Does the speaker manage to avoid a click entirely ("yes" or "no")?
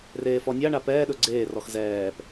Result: no